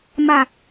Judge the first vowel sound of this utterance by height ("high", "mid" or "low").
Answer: low